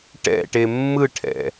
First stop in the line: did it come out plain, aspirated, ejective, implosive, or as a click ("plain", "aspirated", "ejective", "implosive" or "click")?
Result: plain